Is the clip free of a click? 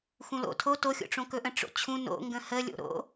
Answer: yes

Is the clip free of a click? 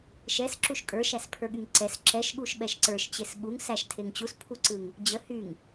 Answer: no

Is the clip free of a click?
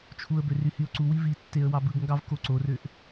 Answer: no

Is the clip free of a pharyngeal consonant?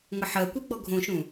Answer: no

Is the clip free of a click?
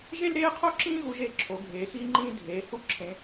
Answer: no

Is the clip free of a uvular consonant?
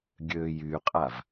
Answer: no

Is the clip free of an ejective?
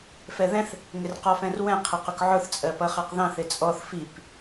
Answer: no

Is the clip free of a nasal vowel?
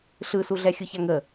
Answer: yes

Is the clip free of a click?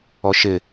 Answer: yes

